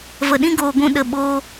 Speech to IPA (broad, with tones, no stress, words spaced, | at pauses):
və˨ɗĩ˦ ɡoː˨ɡʷũ˧ ɗə˧ɓoː˦